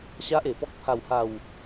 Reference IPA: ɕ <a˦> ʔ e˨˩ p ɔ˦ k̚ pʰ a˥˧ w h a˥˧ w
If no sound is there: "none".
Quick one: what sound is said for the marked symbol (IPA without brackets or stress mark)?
a˦